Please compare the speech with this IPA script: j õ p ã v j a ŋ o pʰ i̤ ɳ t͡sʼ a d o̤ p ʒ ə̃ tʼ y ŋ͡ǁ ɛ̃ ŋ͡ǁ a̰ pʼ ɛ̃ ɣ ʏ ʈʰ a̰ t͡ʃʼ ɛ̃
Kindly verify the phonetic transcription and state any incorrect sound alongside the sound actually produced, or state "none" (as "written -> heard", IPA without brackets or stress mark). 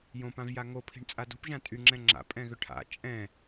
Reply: ə̃ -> ã